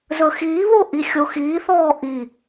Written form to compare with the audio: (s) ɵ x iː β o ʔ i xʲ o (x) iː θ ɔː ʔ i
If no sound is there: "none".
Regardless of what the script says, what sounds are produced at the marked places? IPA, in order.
z, x

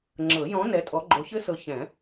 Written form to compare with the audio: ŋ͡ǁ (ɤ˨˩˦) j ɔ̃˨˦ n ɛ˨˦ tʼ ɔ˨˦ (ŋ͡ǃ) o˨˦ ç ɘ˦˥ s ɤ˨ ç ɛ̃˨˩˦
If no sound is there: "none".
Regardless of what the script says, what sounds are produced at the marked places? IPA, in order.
ɤ˨˩˦, ɡ͡ǃ

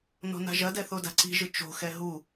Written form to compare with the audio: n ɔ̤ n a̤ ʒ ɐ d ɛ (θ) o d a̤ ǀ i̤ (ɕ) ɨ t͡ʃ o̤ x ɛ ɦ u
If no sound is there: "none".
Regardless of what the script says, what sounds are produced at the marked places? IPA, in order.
θ, ʒ

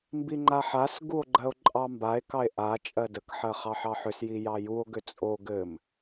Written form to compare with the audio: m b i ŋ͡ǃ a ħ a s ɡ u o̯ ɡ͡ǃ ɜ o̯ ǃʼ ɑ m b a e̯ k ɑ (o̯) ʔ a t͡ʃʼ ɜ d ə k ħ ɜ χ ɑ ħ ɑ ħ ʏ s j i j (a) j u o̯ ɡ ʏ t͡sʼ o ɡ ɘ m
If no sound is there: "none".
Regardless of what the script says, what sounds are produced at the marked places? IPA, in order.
e̯, ɑ

